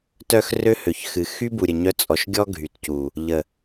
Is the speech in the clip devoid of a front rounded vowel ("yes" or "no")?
no